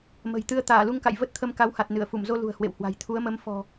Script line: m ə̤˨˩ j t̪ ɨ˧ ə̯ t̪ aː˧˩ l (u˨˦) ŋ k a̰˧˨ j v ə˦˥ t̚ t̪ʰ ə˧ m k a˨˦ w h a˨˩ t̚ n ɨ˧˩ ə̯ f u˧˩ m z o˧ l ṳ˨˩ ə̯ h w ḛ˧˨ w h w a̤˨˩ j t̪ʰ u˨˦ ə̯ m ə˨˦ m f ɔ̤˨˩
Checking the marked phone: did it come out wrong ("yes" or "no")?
yes